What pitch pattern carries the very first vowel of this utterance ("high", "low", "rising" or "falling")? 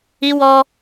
high